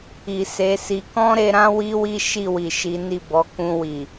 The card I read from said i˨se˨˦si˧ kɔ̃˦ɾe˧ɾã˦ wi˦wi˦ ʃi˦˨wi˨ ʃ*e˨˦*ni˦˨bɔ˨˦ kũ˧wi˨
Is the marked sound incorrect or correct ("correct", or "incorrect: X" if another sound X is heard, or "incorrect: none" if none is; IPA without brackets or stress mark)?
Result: incorrect: i˨˦